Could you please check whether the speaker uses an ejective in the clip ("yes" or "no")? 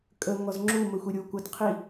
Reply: yes